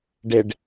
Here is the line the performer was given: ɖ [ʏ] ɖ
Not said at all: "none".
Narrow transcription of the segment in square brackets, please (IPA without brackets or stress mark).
ɪ